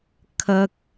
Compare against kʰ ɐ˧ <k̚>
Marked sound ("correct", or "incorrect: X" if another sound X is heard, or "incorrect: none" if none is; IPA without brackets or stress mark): correct